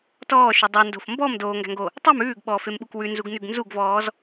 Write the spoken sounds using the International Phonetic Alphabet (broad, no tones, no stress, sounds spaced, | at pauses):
t ɔː ʃ ʉ dˤ o n d o̤ f m b ɔ m d oː ŋ ɡ æ̤ ŋ ɡ o | tˤ i m ʉː ɡ ɓ ɔː f e m ɓ u k w ʉ n z u ɡ n ʉ ɡ n z u ɡ v ɔː z